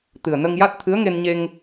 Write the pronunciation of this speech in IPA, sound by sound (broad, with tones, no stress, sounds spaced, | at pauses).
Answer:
t̪ ɨ˨˩ ə̯ n ə˧ ŋ j a˦˥ t̚ t̪ʰ ɨ˧˥ ə̯ ŋ e˧ n ɲ e˧ ŋ